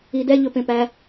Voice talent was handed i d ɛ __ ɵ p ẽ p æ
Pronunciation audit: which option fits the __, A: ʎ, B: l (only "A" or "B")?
A